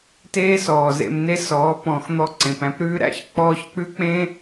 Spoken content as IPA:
t eː˦ s ɔː˨ z ḛ˧ m n e˦ s ɔː˨˦ p ɔ̃˨ x n̪ ɔ˧ ǀ ẽ˨ p æ̃˦ p ɾ ʉː˦ ɾ æ̰˦ ç k͡p ɔː˧ ç k͡p ʉ˦ k͡p ẽ˦

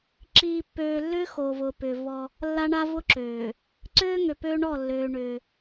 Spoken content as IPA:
ǁ iː˨ pː øː˨ lː ʏː˦ x o˨ v ʊː˨ p ʏː˨ v ɔ˦ | lː a˦ ɳ a˦ v ʊ˦ ǁ øː˨ | ǀ øː˦ ŋ ø˨ p øː˦ ɳ ɔ˦˨ lː øː˦ ɳ ʏː˦

